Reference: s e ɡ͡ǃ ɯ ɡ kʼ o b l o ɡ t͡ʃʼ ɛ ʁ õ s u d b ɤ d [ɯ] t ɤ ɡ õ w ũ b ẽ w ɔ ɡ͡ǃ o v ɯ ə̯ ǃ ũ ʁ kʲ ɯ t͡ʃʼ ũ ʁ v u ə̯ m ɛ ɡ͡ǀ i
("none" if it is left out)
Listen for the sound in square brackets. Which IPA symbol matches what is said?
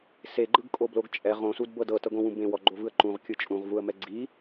ɤ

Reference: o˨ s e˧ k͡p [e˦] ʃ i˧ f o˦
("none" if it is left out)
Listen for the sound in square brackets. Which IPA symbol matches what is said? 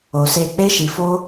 e˦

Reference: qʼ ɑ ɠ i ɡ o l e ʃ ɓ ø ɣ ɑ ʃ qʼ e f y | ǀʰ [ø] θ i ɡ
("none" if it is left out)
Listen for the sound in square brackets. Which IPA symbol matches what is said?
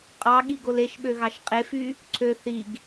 ø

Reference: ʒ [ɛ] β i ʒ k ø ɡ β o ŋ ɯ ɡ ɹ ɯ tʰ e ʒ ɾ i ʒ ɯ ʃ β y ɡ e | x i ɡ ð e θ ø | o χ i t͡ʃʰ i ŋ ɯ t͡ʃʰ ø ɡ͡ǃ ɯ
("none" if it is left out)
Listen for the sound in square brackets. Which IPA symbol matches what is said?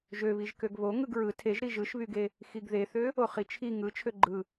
ø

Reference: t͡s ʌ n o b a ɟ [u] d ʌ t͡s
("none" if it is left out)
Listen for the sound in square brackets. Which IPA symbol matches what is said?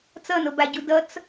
u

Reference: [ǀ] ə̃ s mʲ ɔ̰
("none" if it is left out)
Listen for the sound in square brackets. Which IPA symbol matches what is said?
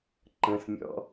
ǃ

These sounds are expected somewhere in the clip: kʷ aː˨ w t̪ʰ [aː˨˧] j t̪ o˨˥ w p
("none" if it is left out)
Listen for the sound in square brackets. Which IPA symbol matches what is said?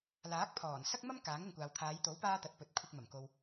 aː˨˧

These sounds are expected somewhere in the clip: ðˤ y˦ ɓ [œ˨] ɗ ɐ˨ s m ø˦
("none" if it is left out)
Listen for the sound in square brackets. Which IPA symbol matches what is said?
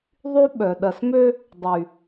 œ˨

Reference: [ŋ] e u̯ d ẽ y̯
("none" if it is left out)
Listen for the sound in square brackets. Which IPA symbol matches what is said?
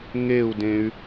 ŋ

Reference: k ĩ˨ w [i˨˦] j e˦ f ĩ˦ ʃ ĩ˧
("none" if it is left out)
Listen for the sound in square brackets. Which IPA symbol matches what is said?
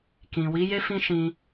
i˨˦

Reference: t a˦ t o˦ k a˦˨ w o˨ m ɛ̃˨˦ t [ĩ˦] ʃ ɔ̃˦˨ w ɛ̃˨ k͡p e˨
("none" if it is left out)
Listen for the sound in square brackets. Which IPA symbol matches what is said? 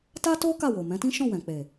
ĩ˦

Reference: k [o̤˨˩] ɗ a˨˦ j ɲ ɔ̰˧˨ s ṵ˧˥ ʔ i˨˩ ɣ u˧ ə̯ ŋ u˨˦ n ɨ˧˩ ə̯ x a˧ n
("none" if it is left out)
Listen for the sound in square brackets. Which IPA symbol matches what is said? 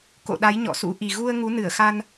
o̰˧˨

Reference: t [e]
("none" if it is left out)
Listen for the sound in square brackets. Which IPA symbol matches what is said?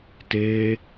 e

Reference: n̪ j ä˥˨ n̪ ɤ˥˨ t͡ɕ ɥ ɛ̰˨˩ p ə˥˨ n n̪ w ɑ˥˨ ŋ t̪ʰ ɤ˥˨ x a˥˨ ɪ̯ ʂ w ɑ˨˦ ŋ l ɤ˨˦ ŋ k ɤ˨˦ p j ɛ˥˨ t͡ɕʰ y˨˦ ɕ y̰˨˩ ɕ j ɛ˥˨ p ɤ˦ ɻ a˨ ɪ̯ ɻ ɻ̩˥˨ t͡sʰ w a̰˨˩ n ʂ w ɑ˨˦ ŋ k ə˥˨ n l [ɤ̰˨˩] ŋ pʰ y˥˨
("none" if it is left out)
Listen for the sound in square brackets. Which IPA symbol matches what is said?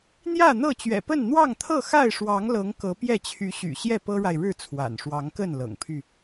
ɤ̰˨˩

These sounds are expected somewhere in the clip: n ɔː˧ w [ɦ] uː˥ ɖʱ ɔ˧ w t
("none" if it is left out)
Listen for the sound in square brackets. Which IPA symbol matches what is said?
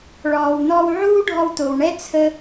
ʕ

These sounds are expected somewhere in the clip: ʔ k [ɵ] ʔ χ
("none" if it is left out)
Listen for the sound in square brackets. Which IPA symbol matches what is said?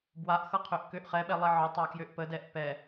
ø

